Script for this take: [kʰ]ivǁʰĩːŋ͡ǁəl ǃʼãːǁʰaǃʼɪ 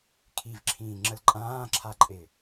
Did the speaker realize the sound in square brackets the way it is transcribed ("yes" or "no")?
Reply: yes